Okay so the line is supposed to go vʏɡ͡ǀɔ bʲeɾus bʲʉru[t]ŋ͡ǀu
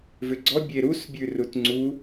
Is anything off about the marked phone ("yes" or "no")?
no